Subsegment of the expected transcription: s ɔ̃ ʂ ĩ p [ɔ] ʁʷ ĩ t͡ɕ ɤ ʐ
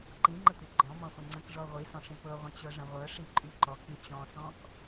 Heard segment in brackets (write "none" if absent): ɤ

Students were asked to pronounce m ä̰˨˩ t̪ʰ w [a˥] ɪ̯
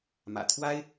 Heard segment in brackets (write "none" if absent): a˥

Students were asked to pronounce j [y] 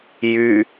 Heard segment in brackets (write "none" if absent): y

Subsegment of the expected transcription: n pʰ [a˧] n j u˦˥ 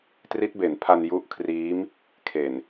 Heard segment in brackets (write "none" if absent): a˧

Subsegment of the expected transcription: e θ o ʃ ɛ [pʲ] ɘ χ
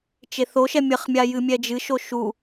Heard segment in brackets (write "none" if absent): mʲ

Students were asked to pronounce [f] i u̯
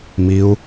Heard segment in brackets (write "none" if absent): m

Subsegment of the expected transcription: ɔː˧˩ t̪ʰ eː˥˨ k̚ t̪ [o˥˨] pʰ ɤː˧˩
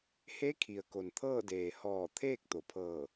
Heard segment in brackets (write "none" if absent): o˩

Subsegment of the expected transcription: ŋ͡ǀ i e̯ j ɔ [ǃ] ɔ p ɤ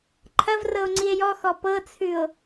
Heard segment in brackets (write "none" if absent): x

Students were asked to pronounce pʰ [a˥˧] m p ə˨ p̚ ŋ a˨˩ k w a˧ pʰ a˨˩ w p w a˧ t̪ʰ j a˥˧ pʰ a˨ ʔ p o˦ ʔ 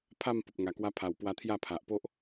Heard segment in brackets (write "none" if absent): a˥˧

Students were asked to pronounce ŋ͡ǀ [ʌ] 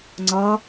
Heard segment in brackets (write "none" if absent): ʌ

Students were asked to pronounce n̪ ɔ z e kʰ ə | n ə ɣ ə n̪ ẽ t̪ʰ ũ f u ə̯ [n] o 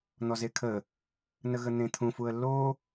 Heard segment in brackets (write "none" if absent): lː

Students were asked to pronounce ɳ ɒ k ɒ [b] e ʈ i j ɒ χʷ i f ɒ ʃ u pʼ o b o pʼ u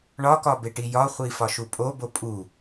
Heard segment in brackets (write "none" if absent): b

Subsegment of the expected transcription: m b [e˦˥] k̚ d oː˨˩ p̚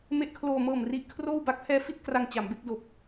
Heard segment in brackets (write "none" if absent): e˦˥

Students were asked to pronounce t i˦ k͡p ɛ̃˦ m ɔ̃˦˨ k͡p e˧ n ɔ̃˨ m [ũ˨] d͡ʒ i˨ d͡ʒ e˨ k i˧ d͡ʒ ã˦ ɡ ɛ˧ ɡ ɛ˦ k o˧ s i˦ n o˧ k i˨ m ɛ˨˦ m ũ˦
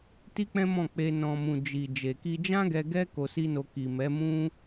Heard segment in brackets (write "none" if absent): ũ˨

